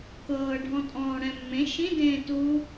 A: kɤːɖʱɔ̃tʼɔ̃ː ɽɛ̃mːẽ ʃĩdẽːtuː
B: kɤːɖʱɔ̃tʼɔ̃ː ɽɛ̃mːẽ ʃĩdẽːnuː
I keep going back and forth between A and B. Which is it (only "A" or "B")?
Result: A